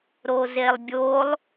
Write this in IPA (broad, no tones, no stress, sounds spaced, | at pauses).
ɾ o z e lˠ bʲ o lˠ